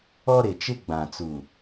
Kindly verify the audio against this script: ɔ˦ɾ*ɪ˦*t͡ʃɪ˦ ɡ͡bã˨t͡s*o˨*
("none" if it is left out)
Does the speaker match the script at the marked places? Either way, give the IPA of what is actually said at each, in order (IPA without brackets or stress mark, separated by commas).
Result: ɪ˨, u˨